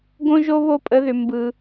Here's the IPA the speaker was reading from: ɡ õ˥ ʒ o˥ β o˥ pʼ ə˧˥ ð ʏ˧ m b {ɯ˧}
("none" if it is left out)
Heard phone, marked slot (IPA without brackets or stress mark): ɯ˧